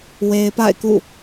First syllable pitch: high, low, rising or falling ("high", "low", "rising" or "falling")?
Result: low